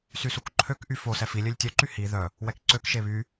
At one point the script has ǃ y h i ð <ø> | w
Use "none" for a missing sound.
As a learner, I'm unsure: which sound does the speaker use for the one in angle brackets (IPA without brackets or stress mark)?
œ